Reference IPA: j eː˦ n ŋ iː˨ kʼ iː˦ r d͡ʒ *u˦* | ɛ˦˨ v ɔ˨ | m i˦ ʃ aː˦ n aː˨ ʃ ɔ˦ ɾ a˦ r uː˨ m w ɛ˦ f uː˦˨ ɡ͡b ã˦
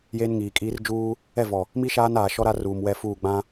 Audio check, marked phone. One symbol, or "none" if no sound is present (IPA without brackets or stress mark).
uː˦